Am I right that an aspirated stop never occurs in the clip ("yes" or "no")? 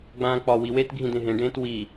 yes